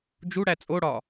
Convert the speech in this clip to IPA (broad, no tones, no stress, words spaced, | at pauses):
d͡ʒuɽæ t͡sʼoɽɒ